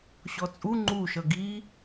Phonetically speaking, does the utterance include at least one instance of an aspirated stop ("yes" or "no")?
no